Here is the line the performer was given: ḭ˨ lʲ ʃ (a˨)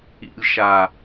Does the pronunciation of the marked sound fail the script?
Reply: no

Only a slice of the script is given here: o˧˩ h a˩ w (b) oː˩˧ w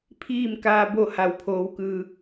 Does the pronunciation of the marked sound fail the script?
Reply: yes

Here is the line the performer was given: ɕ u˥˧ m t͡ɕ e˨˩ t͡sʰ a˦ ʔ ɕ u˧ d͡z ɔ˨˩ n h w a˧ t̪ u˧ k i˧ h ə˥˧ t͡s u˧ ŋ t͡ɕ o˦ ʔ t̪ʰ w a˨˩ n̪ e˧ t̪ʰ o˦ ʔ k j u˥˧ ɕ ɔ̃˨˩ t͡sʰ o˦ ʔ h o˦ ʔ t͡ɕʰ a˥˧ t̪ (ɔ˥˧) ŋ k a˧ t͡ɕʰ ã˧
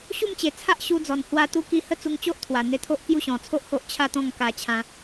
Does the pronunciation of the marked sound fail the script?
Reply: yes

